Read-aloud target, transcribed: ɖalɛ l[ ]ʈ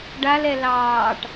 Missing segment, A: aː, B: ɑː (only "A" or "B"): B